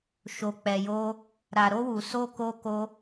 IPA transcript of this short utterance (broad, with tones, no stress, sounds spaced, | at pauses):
ʃ o˨ k͡p ɛ˨ j o˧ | ɾ a˨ ɾ o˧ w u˨ s o˧ k o˧ k o˧